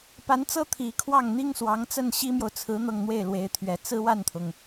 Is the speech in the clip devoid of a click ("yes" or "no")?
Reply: yes